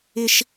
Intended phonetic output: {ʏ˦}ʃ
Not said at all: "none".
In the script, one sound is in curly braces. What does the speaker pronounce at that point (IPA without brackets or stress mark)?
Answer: ɪ˦